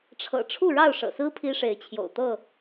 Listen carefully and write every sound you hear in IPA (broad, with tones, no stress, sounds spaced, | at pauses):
ʈ͡ʂʰ ɤ̰˨˩ ʈ͡ʂʰ u˥˨ ɻ ɑ˥˨ ʊ̯ ʂ ɤ̰˨˩ s ɹ̩˦ pʰ i˦ ʂ e˨˦ ɪ̯ t͡ɕʰ j o̰˨˩ ʊ̯ t̪ ɤ˥˨